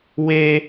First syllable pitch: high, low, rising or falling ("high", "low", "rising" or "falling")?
high